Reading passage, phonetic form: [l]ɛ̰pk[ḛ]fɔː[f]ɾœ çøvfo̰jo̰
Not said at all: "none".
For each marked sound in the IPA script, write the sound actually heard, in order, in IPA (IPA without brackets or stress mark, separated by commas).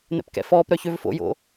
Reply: n̪, ɛ̰, p